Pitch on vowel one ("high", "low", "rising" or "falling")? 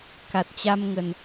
low